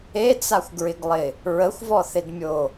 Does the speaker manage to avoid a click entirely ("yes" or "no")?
yes